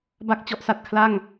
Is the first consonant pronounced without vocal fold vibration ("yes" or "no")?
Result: no